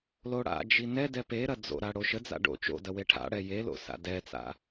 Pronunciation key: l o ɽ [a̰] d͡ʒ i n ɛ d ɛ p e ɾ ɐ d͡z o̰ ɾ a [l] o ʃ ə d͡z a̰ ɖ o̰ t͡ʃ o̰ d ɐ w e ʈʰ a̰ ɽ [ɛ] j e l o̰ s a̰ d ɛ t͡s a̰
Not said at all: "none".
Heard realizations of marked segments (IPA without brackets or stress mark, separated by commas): a̰, ɽ, ɛ